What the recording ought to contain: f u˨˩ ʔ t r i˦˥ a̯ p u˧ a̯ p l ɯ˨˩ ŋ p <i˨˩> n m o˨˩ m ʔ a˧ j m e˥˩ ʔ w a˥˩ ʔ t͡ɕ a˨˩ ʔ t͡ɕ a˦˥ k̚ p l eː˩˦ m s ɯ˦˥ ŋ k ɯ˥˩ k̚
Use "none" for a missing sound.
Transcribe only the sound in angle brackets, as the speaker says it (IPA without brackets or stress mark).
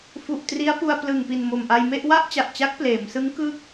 i˨˩